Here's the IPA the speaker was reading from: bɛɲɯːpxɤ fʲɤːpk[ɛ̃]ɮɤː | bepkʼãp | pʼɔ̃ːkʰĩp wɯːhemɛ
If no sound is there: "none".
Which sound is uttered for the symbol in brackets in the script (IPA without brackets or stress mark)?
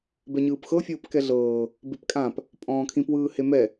ɛ